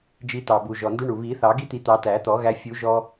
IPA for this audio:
d͡ʒ i˧ t ɑ˨˩ b u˨˩ ʒ ɔ˨˩ n d u˦˥ ɳ u˨˩ β i˨˩˦ θ ɑ˨˩˦ ɡ i˦˥ t̪ i˨˩˦ t̪ ɑ˨˩˦ t æ˨˩˦ t̪ ɔ˨˩˦ ɣ æ˧ fʲ u˨˩˦ ʒ ɔ˧

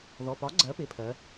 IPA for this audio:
ð ɔ˩˧˩ p ɒ˨˥ ɡ͡ǀ ɜ˨˥ p ɪ˩˧˩ pʰ ɜ˩˧

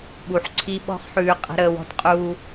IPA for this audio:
ɓ u˨ ħ ǀʰ i˦ ɓ ɔ̤˦ χ ħ ʉː˨˦ qʼ ə̤˦ ɾ əː˨˦ w ɔ̤˦ t qʼ uː˦

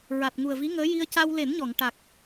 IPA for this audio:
ɹ a˨˩ t̚ ŋ u˨˩ ə̯ v i˧˥ ŋ əː˧˥ j i˧ ə̯ c a˧ w l e˨˩˦ n ɲ ɔ˨˩˨ ŋ ʈ a˨˩ k̚

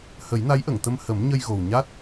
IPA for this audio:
h ə˨˩˦ j n a˧˥ j ʔ ə˨˩˨ ŋ t̪ ə˧ m h ə˨˩˦ m ɲ ə˧ j ɣ o˨˩ w ɲ a˦˥ t̚

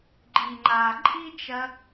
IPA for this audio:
ɡ͡ǃ i˨ ŋ͡ǃ a˨ ǃʼ i˦ t͡ʃ ɐ˧

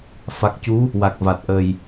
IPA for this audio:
f a˨˩ k̚ c u˧˥ | w a˨˩ k̚ v a˨˩ t̚ ʔ əː˨˩ j

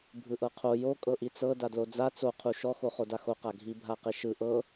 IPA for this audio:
bʱ ɯ ʔ ɤ qʰ o j o kʼ ɤ ʔ i t͡s ɤ d a d l o d͡z a t͡s o qʰ u ʃ ɔ x o χ o d a x o q a ɡʱ i bʱ a q e ʃ ɯ ʔ ɤ

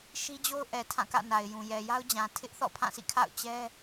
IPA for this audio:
ʃ i˦ d͡ʑ o˦ ʊ̯ ʔ ɛ˨ tʰ ã˦˨ k ä̰˦˨ n a˨ ɪ̯ j ũ˨ j ɛ˨ j a˦ ʊ̯ d͡ʑ ã˨ tʰ ɪ˦ ʔ θ ɔ̰˦˨ pʰ ã˦˨ sʰ ḭ˦˨ kʰ a̰˦˨ ʊ̯ t͡ɕ ɛ˦

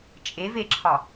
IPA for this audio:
t͡ʃʼ e v e ǁʰ ɒ

